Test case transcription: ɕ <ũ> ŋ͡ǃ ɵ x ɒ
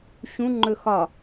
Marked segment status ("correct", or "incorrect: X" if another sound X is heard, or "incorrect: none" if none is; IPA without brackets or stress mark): correct